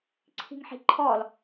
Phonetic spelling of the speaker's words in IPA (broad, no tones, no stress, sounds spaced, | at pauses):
ǀʰ i̤ ŋ ħ i̤ ǃʰ ɔ l